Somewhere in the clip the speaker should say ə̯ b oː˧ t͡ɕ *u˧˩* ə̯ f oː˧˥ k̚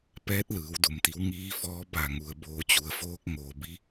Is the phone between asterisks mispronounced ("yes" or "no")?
yes